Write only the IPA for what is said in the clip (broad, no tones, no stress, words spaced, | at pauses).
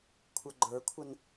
kʷʰəɡ͡ǃə˞kʷʰən